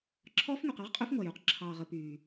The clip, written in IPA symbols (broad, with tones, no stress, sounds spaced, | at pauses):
ǁʰ ɔː˦ f ŋʷ e˨ q ɑ˦ ʁ qʼ ø˦ f ŋʷ a˨ j u˦ q ǁʰ ɑː˨ ʁ ə˨ p yː˨